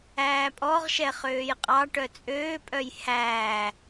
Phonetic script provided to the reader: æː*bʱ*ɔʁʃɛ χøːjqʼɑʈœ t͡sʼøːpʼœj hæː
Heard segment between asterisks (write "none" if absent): pʼ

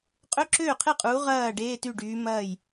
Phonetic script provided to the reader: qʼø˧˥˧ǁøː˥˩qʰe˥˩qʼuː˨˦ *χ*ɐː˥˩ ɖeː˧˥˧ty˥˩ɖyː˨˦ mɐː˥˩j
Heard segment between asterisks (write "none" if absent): ʁ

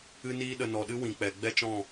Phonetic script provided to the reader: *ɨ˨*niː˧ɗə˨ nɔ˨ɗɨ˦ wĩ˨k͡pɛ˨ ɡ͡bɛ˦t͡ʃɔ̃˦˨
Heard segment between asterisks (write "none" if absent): ɨ˧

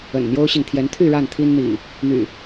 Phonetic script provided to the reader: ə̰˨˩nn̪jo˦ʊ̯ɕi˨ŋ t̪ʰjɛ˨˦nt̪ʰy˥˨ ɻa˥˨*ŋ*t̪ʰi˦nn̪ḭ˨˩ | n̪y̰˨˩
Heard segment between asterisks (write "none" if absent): n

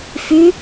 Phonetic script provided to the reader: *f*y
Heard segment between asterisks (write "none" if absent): f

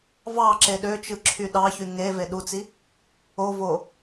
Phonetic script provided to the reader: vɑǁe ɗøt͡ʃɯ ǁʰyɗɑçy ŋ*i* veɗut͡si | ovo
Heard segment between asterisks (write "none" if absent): e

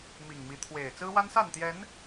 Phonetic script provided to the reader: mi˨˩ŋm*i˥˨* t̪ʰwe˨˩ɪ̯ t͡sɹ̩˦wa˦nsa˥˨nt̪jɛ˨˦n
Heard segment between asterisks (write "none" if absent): i˨˦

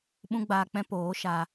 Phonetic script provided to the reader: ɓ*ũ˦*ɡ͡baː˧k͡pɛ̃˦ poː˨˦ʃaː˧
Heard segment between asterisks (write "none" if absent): ũ˦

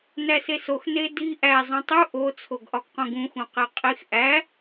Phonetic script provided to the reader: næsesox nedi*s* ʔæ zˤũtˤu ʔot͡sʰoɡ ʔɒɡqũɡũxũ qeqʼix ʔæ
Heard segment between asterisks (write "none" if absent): none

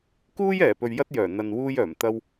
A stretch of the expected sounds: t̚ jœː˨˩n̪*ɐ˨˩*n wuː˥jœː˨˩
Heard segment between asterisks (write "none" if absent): ɐ˨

